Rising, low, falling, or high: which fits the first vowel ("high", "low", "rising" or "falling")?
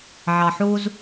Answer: low